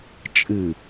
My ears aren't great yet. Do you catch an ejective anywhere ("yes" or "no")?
yes